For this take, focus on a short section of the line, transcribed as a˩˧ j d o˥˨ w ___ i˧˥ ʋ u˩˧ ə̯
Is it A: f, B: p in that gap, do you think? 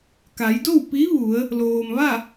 B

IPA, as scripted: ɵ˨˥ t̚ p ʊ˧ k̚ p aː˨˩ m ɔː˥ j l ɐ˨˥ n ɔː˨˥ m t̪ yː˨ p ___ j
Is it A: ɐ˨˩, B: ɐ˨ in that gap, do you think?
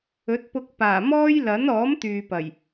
A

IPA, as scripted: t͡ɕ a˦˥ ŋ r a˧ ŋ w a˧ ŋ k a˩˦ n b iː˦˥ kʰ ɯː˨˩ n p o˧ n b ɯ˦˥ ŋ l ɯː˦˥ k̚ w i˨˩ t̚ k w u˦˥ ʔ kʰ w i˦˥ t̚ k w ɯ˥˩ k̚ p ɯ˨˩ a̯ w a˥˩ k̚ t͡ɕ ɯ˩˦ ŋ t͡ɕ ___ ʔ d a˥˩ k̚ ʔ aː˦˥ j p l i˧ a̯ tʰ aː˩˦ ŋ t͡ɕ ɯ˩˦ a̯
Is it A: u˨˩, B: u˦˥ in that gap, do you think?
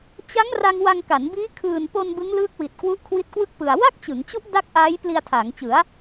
B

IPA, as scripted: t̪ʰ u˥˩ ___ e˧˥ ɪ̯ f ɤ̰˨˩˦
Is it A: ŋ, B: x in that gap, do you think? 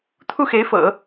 B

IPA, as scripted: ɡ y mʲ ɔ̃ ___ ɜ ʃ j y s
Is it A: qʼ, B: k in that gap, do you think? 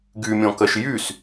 B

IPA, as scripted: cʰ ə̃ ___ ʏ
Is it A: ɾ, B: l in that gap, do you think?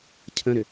A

